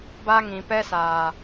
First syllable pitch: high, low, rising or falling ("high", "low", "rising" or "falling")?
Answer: high